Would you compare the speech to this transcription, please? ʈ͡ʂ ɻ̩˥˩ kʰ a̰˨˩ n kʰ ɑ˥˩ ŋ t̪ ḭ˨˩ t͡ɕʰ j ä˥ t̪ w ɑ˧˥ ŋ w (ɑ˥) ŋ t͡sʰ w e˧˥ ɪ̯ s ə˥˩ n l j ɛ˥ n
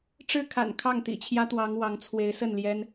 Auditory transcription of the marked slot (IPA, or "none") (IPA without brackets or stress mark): ɑ˧˥